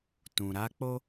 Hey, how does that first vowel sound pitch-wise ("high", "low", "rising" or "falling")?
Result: low